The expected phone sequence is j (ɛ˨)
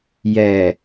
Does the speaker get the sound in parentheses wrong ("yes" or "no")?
no